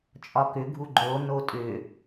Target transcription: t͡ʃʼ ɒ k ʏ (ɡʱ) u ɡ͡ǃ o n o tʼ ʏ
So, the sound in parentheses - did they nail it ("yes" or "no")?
yes